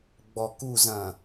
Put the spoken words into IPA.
ɡ͡b ɔ˨ k u˦˨ z ɐ̃˨

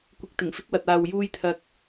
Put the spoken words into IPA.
kʷ ɪ˧ k̚ t̪ ɪ˨˩ ŋ f ɪ˥ k̚ w ɐ˨ t̚ aː˨ w j uː˧ j t̪ʰ ɐ˨ k̚

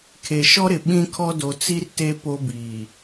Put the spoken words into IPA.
kʰ e˨ ʃ ɔ˦ ɾ ɪ˨ ɓ ĩ˦ kʰ ɔ˦ d o˨ t͡s i˦ r t e˦ p o˦ b iː˨

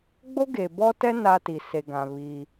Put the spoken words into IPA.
ɡ͡b o˦ ɡ e˨ b ɔ˦ t ɛ˦ n a˦ t i˨ s e˨ ɡ ã˨ β i˦

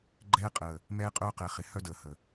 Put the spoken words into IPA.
ɡ͡ǃ ɛː˦ qʼ əː˨ | m ɛː˦ qʼ œː˦ q ɛ˨ χ ɪ˨˦ h œ˦ d əː˨ h ə˨

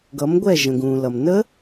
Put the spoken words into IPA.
ɡ ʌ˩˧ m ɡʷ ɛ˧˩ ʒ ə̃˩ ɡ ũː˩ l ʌ˩ m n ə˦˥

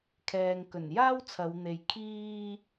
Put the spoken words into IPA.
kʰ ɛː˨ ŋ k ɵ˨˩ n j aː˥ w t͡sʰ ɐ˨˧ w n̪ e˨˧ j kʰ iː˥

